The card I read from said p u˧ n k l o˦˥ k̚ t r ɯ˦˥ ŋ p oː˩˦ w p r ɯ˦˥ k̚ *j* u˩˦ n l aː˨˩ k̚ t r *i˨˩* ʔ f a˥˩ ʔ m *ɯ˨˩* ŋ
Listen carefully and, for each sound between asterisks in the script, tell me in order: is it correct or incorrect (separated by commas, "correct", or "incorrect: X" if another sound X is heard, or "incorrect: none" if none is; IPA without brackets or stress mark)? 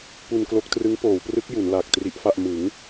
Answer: correct, incorrect: i˦˥, incorrect: ɯ˩˦